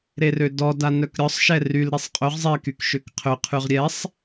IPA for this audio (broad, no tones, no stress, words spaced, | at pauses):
ɾerødɔ danœkɾʲɔsˤ ʃɛryl ɾisˤqʼøʁ zˤɛ kykʃøkqʰø qʰyʁɾʲɛsˤ